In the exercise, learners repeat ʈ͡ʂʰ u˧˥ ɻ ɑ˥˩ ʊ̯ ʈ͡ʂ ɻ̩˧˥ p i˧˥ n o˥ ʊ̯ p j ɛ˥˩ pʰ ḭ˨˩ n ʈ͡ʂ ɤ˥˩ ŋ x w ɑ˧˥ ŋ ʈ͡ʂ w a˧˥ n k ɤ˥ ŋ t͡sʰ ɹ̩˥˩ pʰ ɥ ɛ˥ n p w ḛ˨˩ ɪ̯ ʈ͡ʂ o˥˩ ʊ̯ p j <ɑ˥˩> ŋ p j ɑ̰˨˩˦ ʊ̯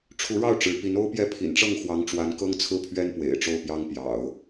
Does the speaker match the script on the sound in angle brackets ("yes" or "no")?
no